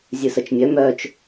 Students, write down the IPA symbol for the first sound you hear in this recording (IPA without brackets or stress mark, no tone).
zʲ